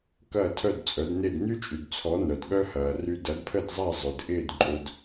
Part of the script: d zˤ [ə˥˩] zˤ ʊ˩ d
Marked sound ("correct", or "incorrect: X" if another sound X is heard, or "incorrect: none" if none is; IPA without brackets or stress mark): incorrect: a˥˩